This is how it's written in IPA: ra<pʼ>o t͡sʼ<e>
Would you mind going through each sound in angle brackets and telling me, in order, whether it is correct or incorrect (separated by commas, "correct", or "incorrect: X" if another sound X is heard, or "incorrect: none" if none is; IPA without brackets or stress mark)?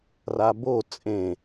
incorrect: b, incorrect: ẽ